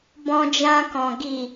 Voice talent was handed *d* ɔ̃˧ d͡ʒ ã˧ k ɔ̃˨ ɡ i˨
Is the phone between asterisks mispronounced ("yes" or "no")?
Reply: yes